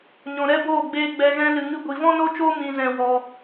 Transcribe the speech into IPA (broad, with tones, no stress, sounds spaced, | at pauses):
ɲ ɔ̃˨ ɾ ɛ˦ b oː˦˨ ɡ͡b eː˦ ɡ͡b ɛ˧ ɣ ɛ̃˦ l ɨ˧ ŋ ɨ˦ ɡʷ i˧ v ɔ̃˦ n o˦ t͡ʃ oː˦ m ĩ˧ z ɛ̃˧ w ɔ˧